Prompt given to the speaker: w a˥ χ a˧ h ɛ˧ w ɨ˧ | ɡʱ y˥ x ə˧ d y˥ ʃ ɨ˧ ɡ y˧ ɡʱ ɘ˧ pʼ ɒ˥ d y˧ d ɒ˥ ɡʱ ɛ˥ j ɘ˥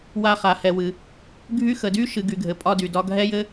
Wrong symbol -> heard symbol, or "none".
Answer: none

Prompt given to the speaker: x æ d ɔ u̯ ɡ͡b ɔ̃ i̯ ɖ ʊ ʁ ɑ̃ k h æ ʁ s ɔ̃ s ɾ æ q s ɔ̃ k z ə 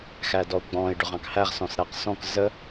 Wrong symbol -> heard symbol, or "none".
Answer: none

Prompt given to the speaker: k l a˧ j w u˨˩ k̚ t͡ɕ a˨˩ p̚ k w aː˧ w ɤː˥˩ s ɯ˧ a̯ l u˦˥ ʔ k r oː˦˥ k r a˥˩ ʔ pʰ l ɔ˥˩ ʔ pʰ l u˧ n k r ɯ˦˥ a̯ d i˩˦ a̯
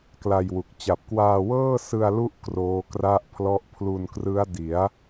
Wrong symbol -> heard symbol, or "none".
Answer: none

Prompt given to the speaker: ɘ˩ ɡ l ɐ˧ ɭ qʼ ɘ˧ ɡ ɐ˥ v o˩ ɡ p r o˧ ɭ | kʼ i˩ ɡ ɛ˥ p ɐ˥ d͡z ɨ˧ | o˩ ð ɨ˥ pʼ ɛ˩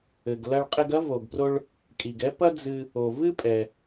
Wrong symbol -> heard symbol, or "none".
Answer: ð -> v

